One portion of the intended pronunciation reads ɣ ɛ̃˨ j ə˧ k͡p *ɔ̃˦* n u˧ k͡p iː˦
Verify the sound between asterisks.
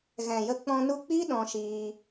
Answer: incorrect: ɔ̃˧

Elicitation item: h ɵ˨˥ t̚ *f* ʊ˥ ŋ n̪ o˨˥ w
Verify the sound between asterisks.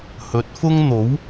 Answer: correct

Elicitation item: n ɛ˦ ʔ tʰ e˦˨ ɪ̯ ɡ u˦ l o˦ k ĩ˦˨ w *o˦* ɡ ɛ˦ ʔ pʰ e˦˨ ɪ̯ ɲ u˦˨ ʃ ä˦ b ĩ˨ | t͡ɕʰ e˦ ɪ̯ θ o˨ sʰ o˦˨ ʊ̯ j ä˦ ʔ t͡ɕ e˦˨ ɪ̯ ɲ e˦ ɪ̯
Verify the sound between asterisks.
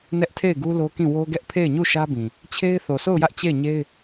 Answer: correct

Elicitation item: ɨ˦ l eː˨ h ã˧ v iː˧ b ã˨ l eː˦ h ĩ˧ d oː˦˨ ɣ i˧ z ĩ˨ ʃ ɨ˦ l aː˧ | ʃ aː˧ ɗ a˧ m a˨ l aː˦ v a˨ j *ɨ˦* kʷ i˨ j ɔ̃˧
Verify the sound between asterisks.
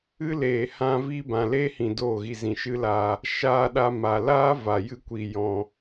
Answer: incorrect: ɨ˧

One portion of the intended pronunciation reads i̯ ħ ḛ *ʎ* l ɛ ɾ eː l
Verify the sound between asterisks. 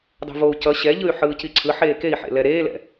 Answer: incorrect: none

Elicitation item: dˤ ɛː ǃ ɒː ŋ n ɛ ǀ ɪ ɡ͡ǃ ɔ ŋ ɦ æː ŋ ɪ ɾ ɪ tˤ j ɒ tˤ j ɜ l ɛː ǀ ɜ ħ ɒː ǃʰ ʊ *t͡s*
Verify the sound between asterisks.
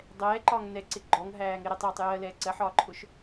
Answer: incorrect: ʃ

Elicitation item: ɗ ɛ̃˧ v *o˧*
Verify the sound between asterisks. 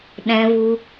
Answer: incorrect: u˧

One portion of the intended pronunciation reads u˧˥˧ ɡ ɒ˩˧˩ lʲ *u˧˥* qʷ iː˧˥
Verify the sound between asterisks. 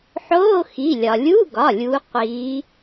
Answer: correct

